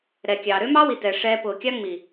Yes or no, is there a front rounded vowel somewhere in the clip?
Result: yes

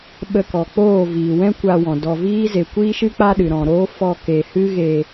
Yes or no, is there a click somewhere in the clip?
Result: no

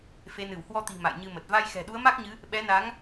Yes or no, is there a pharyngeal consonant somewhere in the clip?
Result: no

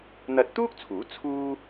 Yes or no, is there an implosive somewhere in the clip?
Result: no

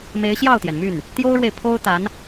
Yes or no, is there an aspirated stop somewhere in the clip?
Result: yes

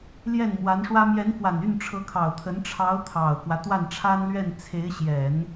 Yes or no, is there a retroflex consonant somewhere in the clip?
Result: yes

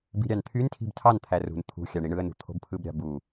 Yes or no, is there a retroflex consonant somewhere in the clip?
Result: yes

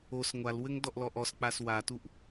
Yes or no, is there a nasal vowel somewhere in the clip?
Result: no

